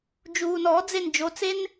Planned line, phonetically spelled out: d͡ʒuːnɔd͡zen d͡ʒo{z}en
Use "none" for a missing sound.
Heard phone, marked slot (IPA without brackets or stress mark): t͡s